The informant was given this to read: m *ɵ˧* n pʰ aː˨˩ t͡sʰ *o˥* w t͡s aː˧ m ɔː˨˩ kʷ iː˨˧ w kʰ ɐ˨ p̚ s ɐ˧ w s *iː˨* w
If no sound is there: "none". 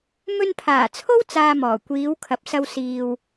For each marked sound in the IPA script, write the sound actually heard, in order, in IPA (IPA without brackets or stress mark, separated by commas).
ɵ˧, o˥, iː˨